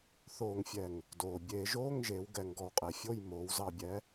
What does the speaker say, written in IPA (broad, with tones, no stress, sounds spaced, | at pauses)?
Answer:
θ oː˧˩˧ ŋ fʲ ɛ˨˩ ŋ | d oː˨˩ bʲ eː˧˩˧ ʒ oː˧˥˧ ŋ ʒ eː˩˧ w ɡ ɛ˧˩˧ ŋ ɡ ɔ˨˩ w qʼ e˨˩ fʲ o˥˨ j m oː˩˧ w z ɑ˨˩ bʲ ɛ˩˧